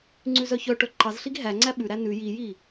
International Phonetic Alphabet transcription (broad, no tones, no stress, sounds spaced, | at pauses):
ŋ͡ǀ ʉ z œ ç œ ʈ œ ǃ ɑ z ɬ i ɡ ɦ æ ŋ͡ǀ æ ɓ ʉ ɾ æ n ʉ j i j i